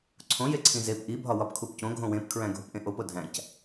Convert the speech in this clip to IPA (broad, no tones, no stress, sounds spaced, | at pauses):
ǀʰ õ j e ǀʰ ĩ z e p ʔ i bʱ ɒ w ɒ p kʰ u p c õ ɡʱ õ w ẽ p kʰ ɹ æ̃ ɡʱ o p ʔ ẽ ʔ o p o dʱ æ̃ c